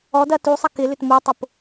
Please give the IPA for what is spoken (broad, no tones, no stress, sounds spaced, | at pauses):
ɔ d ɐ t u sˤ ɐ k ɪ l ʏ t m o tˤ ʊ p